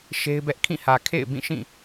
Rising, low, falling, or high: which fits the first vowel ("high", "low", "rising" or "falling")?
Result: high